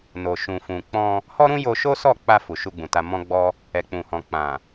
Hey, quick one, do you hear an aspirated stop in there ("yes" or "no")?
no